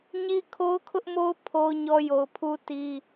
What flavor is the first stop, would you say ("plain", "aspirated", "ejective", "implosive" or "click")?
aspirated